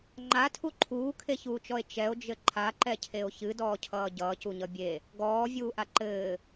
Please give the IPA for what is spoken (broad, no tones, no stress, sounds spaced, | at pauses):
ŋ͡ǃ a tʰ u ǃʰ uː kʰ e ç uː t͡ʃ ɔ e̯ t͡ʃ ɛ o̯ d͡ʒ ɘ ǃʰ a ǃ ɛ cʰ e o̯ ç ɨ d ɔː cʰ ʌː ɟ ʌː c u ɲ ʌ bʲ e | ɡ ɔː vʲ uː ʔ a ǃ ɘː